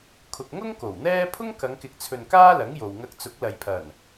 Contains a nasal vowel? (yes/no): no